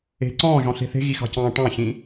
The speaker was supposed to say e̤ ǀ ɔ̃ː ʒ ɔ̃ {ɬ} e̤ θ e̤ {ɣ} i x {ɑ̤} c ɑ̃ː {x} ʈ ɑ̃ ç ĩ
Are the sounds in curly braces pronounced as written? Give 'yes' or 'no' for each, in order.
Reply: yes, yes, yes, no

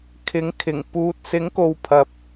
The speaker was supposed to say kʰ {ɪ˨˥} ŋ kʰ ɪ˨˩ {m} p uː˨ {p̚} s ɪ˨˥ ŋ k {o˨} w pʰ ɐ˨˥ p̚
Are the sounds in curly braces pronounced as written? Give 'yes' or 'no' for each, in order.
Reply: yes, no, no, yes

